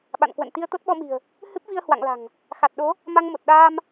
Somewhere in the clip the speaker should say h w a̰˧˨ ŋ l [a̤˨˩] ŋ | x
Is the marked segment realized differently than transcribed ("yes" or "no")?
no